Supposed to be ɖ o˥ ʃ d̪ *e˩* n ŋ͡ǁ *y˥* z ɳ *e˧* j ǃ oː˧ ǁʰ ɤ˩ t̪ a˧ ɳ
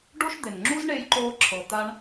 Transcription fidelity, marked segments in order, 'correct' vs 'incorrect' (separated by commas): correct, incorrect, correct